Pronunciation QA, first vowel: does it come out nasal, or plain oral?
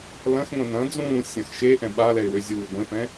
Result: nasal